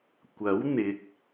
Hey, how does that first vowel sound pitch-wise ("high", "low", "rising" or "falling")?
rising